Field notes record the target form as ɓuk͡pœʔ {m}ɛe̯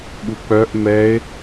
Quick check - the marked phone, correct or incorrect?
correct